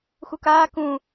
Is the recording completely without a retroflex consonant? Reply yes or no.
yes